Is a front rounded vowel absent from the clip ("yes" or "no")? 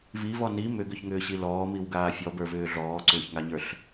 no